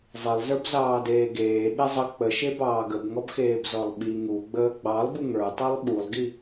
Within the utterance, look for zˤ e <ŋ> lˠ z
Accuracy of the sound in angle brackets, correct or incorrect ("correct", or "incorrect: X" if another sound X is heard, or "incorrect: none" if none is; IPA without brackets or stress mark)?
incorrect: none